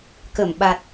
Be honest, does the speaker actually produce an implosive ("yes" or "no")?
yes